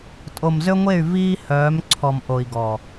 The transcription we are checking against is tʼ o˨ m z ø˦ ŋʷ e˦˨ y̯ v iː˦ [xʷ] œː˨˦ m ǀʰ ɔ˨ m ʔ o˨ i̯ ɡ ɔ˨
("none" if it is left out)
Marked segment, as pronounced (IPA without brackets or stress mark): h